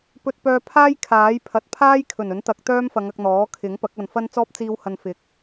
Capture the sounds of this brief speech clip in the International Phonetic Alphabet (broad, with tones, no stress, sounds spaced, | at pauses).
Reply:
p ɵ˧ t̚ p œː˧ pʰ aː˥ j kʰ aː˨˥ j pʰ ɐ˨˥ t̚ pʰ aː˥ j kʰ ɵ˨˩ n ɵ˨˥ n t̪ ɐ˨˥ k̚ t̪ œː˥ m f ɐ˨˧ ŋ ɐ˧ k̚ n̪ ɔː˨˥ kʰ ɪ˨˥ ŋ p ɐ˨˥ k̚ ɐ˨ n f ɐ˥ n t͡s ɔː˥ p̚ t͡s iː˧ w h ɐ˨ n f ɪ˨˥ k̚